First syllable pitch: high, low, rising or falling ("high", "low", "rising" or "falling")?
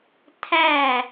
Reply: falling